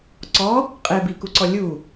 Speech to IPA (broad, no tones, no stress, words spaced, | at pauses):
ǀɔ | qʼebikuǀɔ lʲu